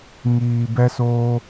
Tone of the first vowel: low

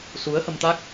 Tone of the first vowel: rising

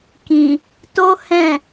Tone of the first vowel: low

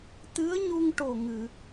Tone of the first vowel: rising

